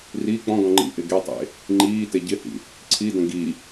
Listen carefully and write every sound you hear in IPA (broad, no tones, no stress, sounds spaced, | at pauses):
r i k͡p ɔ̃ ɡ ɔ̃ ŋ͡ǃ ḭ ʔ ɪ ɡ e tˤ ḛ | ŋ͡ǃ iː t e ɟ ɪ h ḭ | ǀʰ i d ə̃ ɡ i